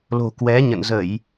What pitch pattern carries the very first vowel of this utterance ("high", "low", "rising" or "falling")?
low